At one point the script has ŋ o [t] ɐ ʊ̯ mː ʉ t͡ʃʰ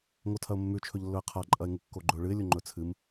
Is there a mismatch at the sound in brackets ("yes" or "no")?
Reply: yes